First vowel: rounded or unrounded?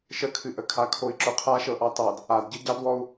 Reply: unrounded